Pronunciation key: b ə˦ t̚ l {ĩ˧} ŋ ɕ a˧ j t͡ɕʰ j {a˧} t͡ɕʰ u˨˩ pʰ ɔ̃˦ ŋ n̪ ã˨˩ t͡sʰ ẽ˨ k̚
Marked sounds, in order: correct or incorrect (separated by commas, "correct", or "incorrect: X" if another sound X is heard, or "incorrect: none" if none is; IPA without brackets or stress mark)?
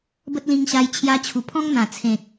correct, correct